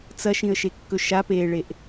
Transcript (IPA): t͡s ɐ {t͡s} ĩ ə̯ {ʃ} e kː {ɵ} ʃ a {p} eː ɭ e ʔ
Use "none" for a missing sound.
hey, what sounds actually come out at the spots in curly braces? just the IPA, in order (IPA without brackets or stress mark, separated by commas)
ʃ, ʃ, ɵ, p